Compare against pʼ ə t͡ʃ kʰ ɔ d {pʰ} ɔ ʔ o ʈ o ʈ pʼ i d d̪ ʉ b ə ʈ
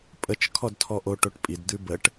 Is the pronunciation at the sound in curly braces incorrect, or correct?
incorrect